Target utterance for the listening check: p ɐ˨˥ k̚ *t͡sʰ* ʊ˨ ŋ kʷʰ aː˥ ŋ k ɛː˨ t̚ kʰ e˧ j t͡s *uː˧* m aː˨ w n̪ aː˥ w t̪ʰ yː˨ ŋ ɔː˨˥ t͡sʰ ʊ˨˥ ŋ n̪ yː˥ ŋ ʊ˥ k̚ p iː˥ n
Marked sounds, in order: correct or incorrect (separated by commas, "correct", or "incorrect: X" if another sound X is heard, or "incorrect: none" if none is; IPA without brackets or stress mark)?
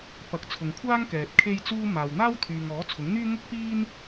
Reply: correct, correct